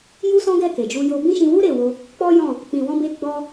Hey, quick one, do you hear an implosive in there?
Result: no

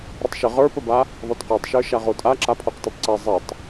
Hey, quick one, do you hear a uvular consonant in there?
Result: yes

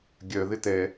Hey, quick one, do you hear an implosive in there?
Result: no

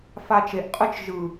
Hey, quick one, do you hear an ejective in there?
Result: yes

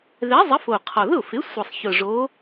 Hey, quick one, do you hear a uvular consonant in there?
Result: yes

